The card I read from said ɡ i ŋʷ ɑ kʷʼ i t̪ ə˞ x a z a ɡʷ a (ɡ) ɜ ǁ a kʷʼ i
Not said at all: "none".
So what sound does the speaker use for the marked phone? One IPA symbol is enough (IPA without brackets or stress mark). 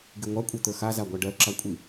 ɖ